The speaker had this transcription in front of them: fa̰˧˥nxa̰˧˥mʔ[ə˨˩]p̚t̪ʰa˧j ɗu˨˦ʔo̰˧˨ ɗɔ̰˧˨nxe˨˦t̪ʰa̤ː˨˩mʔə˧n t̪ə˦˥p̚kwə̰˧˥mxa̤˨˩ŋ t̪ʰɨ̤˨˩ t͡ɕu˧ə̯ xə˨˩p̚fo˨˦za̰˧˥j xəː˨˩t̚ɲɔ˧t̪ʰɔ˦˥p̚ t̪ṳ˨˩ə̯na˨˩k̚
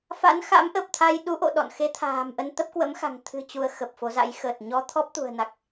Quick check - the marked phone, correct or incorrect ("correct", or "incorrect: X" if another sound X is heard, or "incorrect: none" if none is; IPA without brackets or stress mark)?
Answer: correct